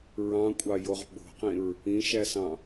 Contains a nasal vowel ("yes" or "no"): yes